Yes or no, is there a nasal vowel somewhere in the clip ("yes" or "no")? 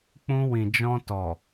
yes